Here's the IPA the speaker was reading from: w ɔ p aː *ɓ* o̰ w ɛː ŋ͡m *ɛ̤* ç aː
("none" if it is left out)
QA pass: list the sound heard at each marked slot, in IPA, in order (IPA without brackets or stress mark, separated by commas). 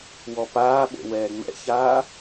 ɓ, ɛ̰